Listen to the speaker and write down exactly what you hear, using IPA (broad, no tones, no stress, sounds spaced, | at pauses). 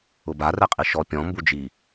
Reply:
ʊ b a r ɛ qʼ i ʃ ɔ pʲ ɔ̃ m b u d͡ʒ i